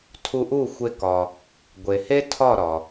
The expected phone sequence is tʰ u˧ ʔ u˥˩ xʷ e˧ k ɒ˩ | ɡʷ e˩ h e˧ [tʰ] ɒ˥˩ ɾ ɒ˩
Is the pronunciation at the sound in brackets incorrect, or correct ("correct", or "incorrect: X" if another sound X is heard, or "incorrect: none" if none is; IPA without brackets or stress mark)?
correct